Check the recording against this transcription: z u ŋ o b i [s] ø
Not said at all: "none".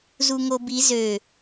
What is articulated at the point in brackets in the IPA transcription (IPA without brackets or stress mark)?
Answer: z